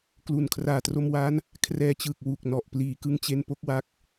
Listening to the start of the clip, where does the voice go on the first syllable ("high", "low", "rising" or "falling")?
low